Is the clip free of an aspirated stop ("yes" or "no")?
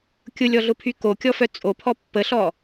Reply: no